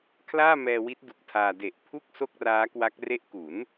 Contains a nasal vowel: no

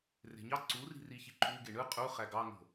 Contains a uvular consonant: yes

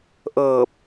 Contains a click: no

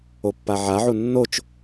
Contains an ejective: no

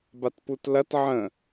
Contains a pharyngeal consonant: yes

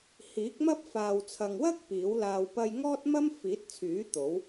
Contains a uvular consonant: no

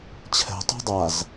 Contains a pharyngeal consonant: no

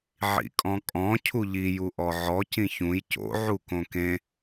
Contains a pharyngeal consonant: yes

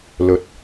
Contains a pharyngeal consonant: no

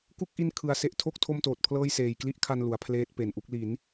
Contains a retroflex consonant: no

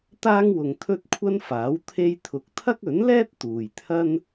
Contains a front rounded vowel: no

